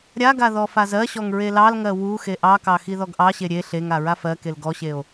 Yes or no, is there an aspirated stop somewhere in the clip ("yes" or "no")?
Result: no